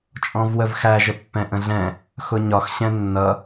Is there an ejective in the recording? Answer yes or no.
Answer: yes